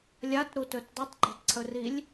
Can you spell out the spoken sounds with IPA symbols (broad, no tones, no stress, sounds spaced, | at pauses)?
lʲ a t ɾ u t ɵ t dˤ u tˤ ɡ͡ǃ e tˤ ǀʰ ɵ r i lʲ